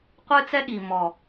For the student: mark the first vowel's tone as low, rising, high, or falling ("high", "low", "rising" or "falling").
high